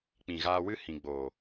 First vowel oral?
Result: no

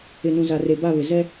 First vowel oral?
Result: yes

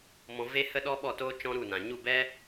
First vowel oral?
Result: no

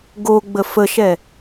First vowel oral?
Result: yes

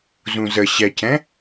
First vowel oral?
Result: no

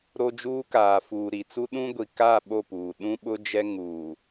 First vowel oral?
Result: yes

